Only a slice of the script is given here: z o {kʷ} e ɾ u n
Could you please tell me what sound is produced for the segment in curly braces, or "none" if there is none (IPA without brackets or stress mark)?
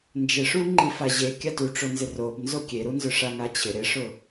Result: kʲ